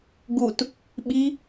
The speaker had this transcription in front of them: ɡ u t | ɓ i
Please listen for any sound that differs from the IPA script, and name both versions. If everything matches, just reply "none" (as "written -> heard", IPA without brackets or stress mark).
none